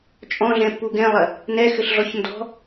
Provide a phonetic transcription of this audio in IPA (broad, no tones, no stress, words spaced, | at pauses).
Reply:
t͡ʃʼɔ̃ɮɛ̃pːu ɡɛ̃lˠɐ | nɛxɘɬɮɔç ndɔ̤